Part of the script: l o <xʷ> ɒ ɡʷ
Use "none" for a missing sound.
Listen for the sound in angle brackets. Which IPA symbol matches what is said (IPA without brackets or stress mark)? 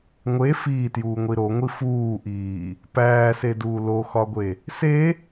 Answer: x